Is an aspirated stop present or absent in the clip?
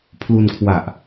present